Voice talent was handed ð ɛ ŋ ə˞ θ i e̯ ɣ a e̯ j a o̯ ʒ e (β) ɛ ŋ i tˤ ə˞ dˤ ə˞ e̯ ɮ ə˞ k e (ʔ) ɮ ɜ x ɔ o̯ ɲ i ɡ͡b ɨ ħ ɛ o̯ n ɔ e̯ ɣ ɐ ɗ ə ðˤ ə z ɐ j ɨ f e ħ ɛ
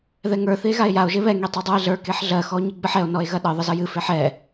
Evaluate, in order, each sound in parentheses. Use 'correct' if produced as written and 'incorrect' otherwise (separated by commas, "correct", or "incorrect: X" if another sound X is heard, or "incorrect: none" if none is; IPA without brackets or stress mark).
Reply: correct, incorrect: ħ